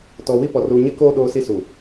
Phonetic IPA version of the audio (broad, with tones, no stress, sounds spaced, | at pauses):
t ɔ˨ w i˦ p ɔ˨ r uː˨ ɲ ɪ˦ k oː˦ ɗ oː˦ s i˦ s u˨